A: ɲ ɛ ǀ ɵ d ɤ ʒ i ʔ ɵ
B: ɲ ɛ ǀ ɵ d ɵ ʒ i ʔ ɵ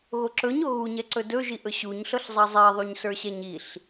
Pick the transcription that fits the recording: B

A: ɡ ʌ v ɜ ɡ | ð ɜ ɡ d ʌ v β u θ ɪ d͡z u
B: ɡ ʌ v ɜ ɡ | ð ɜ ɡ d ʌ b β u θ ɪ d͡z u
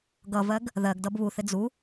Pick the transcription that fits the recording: B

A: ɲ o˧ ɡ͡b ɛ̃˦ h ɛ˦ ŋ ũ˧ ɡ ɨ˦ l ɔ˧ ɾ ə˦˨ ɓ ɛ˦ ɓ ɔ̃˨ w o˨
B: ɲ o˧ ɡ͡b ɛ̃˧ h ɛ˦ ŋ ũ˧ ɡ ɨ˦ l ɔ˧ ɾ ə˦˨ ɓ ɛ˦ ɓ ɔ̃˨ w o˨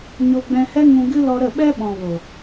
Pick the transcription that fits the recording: B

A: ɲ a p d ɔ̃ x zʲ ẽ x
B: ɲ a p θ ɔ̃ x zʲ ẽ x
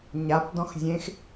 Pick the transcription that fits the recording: A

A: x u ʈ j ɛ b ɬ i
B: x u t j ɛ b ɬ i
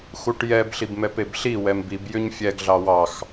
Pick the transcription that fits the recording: A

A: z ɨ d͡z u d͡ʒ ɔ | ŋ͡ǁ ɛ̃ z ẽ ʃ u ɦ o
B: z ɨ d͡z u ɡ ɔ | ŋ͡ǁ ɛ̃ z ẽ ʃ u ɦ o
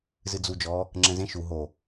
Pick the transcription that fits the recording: A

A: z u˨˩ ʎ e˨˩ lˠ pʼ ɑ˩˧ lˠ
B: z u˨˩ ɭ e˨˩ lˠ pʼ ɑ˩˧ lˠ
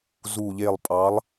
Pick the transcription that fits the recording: A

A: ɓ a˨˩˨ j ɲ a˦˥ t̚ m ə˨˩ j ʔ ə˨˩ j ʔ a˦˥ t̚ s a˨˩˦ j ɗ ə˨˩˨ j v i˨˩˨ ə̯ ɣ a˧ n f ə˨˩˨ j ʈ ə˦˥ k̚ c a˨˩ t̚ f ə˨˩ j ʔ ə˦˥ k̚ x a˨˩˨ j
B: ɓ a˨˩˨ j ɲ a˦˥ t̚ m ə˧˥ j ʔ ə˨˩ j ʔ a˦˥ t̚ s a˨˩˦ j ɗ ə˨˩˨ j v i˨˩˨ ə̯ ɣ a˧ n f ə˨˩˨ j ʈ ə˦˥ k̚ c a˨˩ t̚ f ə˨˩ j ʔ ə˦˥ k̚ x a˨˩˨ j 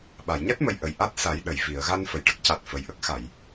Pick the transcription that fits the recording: A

